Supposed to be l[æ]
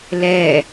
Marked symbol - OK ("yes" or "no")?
no